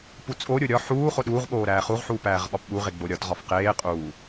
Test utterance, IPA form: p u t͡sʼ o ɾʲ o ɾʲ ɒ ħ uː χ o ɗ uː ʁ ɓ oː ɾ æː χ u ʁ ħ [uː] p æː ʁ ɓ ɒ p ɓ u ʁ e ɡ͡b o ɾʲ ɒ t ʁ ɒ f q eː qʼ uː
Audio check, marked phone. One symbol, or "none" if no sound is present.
uː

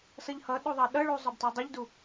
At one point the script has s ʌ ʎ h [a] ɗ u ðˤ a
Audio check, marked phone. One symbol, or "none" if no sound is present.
ʌ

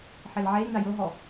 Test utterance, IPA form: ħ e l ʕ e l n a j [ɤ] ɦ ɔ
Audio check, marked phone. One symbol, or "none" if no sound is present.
ɤ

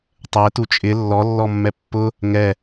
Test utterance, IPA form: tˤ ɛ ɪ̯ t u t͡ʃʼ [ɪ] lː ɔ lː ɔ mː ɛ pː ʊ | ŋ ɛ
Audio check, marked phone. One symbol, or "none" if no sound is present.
ɪ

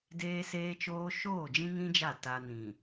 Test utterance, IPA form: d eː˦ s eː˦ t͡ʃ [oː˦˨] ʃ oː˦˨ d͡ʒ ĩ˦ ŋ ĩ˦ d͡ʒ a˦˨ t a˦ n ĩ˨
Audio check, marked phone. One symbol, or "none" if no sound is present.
oː˦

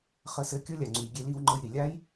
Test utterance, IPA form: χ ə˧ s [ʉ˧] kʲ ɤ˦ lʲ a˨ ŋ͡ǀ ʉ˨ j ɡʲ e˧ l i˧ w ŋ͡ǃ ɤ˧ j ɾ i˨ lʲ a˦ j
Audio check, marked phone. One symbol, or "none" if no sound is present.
ɘ˧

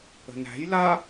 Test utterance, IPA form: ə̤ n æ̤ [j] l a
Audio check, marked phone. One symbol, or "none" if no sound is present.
j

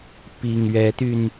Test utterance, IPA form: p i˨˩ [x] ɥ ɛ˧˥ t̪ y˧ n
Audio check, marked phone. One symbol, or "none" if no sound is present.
ŋ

